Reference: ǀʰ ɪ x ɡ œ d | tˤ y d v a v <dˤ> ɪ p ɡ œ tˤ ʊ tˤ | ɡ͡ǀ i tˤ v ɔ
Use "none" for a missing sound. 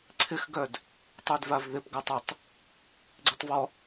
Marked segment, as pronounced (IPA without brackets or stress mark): ð